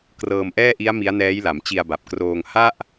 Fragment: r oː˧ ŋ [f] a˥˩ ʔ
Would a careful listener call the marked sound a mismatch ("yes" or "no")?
yes